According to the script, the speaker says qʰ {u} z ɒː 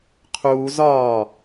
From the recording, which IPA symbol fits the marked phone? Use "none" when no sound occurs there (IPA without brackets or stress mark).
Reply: uː